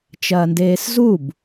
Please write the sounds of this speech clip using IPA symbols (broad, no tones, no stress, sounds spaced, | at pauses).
t͡ʃ ɐː n d eː s z u b